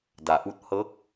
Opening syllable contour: low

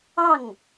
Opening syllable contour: falling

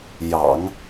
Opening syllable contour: low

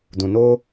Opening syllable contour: low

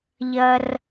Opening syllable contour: high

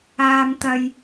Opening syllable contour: high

